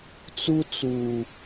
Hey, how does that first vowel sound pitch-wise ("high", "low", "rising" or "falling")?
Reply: high